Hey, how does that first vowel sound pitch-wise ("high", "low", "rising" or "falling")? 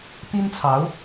high